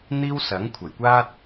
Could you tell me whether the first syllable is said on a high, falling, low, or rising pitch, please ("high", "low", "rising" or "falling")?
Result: high